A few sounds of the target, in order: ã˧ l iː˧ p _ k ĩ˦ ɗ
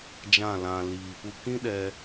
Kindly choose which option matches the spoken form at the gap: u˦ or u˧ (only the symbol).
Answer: u˦